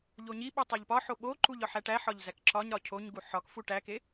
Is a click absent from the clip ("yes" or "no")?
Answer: no